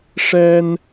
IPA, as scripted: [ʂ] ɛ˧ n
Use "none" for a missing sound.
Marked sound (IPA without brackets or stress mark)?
ʂ